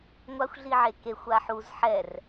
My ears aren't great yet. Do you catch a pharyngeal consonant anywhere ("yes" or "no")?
yes